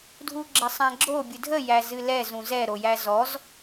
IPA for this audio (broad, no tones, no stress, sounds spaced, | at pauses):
dʱ u ɡ͡ǁ ə sˤ æ̃ ɡ͡ǁ o bʲ ɨ dʱ ə j æ z ɨ l ɛ z ũ z ɛ ɾ o j æ z ɔ z